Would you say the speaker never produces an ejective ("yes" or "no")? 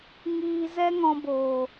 yes